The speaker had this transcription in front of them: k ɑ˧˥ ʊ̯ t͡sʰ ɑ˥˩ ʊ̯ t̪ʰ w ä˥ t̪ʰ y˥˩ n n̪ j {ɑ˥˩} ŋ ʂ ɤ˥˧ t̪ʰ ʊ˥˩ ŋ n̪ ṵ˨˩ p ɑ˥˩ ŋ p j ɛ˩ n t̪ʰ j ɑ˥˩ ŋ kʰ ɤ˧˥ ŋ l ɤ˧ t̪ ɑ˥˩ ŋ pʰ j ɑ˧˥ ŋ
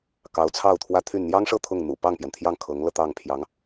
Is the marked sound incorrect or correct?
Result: incorrect: ɑ˥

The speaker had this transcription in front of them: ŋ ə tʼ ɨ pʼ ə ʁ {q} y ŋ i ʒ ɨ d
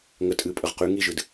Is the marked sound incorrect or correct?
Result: correct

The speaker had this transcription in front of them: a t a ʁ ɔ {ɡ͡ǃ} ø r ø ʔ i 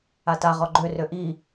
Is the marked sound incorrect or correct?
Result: correct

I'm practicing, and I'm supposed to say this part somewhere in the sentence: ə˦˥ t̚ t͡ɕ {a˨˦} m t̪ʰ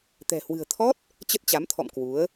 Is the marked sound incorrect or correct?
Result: correct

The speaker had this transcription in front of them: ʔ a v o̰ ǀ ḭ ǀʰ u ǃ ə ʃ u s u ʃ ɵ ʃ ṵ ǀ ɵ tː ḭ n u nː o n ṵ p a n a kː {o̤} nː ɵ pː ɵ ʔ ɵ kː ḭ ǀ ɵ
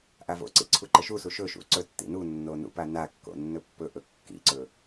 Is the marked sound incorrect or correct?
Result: incorrect: o̰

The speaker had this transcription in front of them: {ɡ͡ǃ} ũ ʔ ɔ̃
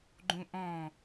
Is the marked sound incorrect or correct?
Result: correct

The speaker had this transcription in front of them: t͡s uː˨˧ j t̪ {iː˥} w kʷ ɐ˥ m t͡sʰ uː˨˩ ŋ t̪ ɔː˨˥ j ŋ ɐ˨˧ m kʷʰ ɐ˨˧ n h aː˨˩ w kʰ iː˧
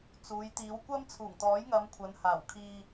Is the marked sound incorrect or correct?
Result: incorrect: iː˨˧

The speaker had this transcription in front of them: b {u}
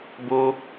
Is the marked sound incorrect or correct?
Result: incorrect: o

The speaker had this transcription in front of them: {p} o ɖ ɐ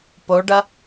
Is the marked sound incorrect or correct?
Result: correct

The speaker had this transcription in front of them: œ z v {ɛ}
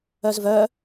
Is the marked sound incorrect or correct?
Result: incorrect: œ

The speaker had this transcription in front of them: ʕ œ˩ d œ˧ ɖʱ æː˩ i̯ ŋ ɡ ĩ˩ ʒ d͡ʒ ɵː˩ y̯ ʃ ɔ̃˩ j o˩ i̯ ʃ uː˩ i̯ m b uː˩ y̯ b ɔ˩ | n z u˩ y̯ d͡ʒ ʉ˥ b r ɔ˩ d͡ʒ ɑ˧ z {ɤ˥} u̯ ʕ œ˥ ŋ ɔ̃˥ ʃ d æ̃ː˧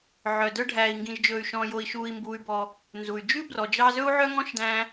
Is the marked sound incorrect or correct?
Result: incorrect: ɵ˥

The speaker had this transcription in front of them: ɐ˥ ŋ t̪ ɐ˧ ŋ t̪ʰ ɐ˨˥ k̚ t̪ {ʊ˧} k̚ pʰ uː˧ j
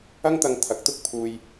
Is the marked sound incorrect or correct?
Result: incorrect: ʊ˥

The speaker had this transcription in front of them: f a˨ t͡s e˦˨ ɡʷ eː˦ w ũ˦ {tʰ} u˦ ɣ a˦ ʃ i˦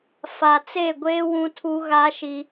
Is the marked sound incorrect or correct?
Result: correct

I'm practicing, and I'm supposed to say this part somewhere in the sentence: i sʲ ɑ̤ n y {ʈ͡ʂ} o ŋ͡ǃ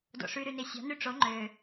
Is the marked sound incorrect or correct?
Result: correct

